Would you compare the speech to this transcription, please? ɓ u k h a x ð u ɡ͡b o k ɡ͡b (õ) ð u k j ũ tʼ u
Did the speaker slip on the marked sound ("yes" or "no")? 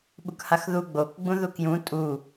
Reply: yes